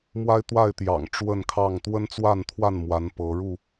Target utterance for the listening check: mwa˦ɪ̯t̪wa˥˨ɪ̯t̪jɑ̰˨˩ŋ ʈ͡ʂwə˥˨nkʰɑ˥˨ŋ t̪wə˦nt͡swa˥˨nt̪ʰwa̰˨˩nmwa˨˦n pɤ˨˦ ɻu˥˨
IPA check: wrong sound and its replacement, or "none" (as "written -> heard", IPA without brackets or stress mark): a̰˨˩ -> a˥˨